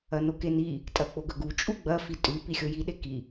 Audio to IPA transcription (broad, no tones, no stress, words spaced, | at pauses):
ɐnokeni | tʼɐk͡poɡɵɡu t͡ʃʼuɡ͡bɐ fitʼʉ pixʲoji ɗeki